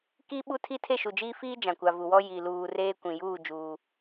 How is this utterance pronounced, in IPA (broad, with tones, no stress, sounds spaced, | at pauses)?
k i˦ ɓ u˦ tʰ i˦ tʰ e˦˨ ʃ u˨ d͡ʒ iː˦ f iː˦ d͡ʒ ã˨ kʷ a˨ v u˨ w ɔ˦ j i˨ l uː˨ r eː˦ kʷ ĩ˨ j uː˦˨ d͡ʒ uː˦